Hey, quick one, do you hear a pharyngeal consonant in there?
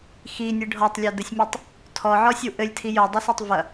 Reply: yes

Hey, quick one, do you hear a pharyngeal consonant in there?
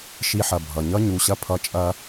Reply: yes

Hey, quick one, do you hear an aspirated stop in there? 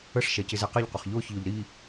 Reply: no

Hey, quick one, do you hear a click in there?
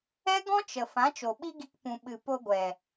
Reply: no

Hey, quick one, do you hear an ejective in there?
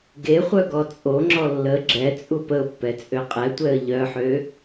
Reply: yes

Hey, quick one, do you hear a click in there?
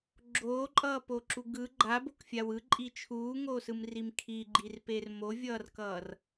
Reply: yes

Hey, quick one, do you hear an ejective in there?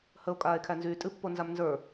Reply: yes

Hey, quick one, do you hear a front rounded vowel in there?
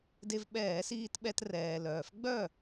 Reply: yes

